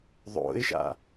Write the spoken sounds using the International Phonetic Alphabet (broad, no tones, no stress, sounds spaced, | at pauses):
ðˤ o̰ ɪ̯ ʃ a̰